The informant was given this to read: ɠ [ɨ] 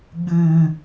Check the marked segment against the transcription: correct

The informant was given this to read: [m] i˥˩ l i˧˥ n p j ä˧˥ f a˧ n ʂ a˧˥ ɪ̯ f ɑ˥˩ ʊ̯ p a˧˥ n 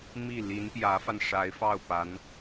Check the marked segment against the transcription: correct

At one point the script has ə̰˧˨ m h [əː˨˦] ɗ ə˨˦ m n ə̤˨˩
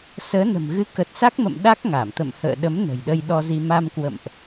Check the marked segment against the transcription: incorrect: ə̰ː˧˨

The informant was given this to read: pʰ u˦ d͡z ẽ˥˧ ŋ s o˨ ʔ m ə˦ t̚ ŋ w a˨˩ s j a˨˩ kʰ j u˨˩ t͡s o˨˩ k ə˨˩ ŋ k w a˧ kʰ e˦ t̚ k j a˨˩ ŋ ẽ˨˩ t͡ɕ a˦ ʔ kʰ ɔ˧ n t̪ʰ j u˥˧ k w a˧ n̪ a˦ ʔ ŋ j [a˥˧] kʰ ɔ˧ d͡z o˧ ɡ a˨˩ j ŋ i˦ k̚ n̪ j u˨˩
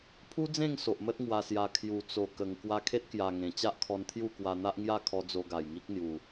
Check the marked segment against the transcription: correct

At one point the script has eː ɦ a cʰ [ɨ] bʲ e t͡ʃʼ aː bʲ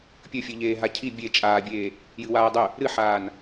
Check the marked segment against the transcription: incorrect: i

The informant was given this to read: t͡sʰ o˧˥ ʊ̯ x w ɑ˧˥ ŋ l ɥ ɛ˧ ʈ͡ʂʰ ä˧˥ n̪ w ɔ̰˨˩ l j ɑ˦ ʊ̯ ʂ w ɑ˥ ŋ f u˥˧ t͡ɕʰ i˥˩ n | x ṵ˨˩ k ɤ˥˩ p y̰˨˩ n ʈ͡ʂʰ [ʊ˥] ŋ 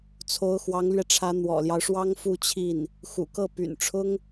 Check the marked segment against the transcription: correct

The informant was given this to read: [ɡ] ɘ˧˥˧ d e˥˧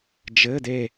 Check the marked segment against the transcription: incorrect: d͡ʒ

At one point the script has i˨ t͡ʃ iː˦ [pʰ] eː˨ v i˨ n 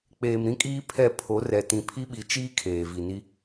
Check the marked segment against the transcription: incorrect: kʰ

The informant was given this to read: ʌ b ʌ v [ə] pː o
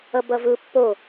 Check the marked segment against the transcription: incorrect: ɯ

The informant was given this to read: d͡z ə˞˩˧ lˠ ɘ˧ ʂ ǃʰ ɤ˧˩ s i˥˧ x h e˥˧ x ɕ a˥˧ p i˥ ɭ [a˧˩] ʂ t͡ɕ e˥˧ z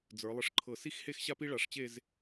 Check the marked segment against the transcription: correct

